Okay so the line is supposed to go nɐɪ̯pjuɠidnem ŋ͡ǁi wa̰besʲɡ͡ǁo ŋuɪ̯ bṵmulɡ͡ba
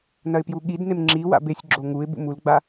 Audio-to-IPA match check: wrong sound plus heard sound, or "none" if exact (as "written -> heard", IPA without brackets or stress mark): none